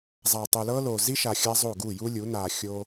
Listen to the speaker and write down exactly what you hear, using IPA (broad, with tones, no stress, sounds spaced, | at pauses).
zˤ a˨ tˤ u˨ l ɤ˦ l o˨ z i˦ ʃ a˨ xʲ a˦ zˤ o˦˨ ɡ u˦˨ j u˦ lʲ u˨˦ n a˨ xʲ o˦